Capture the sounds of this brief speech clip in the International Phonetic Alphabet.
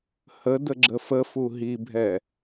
h ə d ə ɡ͡ǁ ə f ə f u ɦ i bʱ ɛ

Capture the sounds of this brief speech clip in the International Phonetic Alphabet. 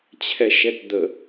t͡ɕʰ ɛ ʃ ɛ t d̪ ə

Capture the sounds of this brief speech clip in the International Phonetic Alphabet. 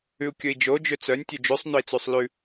ʉ u̯ kʲ ɵ i̯ d͡ʒ o d͡ʒ ø t͡s œ nʲ tʲ ø d͡ʒ ʉ sˤ n ɵ i̯ t͡s ʉ sˤ l ʉ

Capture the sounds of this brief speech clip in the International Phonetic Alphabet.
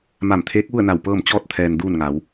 m a˧˩ m t̪ʰ eː˧˥ k̚ ʋ u˥˨ ə̯ n a˧˩ w p ɤː˥˨ m t͡ɕ ɔː˥˨ t̚ t̪ʰ ɛː˩ n d uː˥˨ n ŋ a˩˧ w

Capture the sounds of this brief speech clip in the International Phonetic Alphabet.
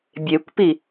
bʲ e kʷ p i

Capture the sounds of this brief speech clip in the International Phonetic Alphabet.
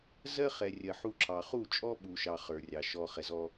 z ɜ˦ χ ɛ˨ rʲ ɜ˨ ħ u˦˨ ǁʰ ɑ˨ χ u˦˨ t͡ʃʼ ɔ˦ ɓ u˨ ʃ ɑ˨ χ ə˞˨ rʲ ɑ˨ ʃ ɔ˨ χ ɛ˨ z ɔ˦

